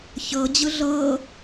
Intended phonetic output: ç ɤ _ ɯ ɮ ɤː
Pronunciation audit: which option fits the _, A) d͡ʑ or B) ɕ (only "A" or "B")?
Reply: A